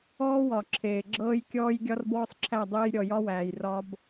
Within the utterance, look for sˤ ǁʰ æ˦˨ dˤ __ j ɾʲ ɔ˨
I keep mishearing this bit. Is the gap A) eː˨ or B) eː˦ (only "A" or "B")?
B